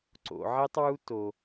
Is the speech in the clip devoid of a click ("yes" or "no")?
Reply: no